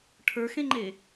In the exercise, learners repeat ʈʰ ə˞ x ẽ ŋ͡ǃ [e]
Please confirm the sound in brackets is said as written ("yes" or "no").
yes